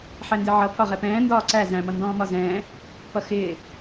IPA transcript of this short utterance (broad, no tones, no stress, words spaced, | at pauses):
ħændɪʕʌ pʰɒʁɛpɛ̃ː ndɒːǀæ zæ̃ mʌndɔ̃ːmɒzɛ̃ː | pʌxɪː